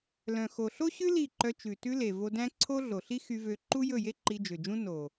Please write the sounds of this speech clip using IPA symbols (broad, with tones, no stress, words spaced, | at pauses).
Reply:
lœ̃˨xo˨ɬo˦ɕʉ˦ li˦˨ǃœ˧t͡ʃʉ˨ tʉ˧le˨ vo˧dæ̃˦ ǀʰo˦ɮo˨ɬi˦ xy˧vø˧ ǃu˦jɵ˦˨je˦ ǃi˧d͡ʒø˨d͡ʒũ˦ no˨